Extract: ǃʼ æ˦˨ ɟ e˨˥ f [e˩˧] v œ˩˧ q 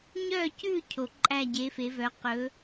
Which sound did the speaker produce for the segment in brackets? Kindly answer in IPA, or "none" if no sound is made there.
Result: e˩˧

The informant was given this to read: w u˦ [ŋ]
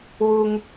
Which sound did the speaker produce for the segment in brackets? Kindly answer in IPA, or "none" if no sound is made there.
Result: ŋ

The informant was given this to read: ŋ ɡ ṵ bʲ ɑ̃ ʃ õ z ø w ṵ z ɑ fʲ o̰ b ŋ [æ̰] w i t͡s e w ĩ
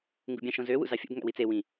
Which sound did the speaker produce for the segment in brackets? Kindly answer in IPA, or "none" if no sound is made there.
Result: æ̰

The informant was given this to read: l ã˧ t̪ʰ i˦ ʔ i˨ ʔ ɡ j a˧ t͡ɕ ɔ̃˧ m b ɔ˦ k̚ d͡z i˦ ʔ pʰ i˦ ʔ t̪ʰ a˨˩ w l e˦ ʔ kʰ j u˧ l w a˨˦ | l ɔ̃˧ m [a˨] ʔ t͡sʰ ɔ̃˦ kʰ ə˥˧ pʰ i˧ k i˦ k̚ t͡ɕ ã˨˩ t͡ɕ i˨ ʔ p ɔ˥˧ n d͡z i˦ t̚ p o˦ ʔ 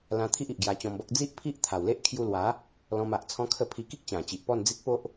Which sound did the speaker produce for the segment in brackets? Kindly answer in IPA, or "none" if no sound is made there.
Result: a˨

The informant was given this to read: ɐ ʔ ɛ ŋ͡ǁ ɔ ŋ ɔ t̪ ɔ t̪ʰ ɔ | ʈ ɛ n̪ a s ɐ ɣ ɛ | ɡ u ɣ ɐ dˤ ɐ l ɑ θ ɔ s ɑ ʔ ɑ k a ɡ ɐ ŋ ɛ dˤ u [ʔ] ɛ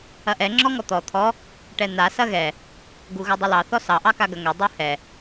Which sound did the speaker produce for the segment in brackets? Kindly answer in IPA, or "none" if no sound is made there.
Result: h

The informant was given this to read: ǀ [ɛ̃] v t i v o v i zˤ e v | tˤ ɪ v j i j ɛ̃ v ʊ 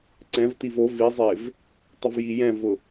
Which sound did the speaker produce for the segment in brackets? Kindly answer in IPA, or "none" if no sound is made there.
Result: ɛ̃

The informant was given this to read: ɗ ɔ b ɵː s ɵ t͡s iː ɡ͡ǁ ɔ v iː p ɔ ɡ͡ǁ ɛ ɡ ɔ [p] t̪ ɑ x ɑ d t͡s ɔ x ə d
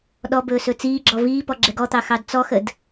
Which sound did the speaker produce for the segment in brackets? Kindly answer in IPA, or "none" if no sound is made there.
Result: none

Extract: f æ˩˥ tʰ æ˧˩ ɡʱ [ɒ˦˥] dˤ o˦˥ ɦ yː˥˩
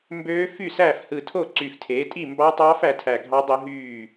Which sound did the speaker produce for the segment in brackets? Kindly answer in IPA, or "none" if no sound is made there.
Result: ɑ˦˥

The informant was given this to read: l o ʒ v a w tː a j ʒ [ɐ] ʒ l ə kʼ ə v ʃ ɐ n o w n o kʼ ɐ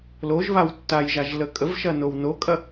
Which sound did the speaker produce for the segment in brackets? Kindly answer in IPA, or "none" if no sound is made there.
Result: a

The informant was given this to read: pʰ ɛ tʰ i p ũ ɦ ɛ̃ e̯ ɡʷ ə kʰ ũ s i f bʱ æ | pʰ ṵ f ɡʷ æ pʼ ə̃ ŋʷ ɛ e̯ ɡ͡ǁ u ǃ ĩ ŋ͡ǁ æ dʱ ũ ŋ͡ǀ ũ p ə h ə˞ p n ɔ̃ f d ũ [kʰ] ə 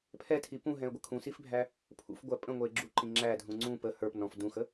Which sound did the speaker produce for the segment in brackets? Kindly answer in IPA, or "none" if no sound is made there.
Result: x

